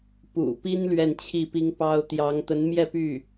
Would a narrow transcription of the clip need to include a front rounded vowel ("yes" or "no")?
yes